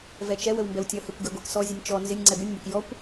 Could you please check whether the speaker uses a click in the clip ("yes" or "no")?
yes